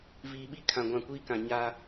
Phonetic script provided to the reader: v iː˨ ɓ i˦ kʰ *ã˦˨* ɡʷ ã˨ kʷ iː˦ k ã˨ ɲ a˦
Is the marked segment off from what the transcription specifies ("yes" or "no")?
yes